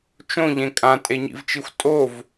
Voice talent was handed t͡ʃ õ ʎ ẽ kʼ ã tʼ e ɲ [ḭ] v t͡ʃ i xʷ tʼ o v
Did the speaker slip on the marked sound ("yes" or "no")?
no